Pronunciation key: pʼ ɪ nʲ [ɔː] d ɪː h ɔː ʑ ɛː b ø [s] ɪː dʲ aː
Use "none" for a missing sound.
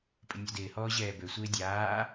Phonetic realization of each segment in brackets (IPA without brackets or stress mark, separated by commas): ɔ, sʷ